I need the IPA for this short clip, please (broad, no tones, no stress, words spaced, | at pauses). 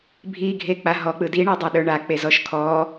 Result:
bʱiɡʱek͡pa ɦɔk͡pɯ diɳedˤa ɗə˞ɳa k͡pezɔʃkʰɔ